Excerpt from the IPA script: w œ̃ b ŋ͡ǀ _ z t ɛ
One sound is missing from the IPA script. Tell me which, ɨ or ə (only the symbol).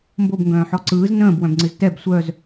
ɨ